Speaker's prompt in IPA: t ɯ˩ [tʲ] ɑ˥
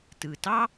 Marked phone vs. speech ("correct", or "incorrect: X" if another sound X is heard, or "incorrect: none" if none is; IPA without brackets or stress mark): incorrect: t